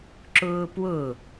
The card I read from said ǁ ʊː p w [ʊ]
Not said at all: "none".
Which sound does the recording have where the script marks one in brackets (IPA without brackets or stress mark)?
ʊ